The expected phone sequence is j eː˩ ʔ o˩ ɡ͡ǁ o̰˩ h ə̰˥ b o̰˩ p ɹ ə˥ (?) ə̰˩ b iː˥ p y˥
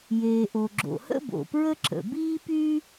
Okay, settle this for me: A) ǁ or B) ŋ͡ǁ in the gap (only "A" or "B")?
A